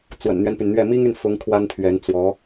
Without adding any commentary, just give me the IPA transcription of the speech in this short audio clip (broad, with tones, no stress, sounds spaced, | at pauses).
t͡s w ə̰˨˩ n n̪ ɥ ɛ˦ n p y˩ n n̪ ɥ ɛ˥˩ m i˥ ŋ y˨ n f ʊ˧˥ ŋ kʰ w a˥ n t̪ʰ ɥ ɛ˧˥ n t͡s w ɔ˧˥